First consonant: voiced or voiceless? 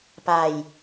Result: voiceless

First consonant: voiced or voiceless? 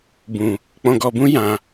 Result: voiced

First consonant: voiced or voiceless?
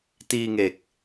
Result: voiceless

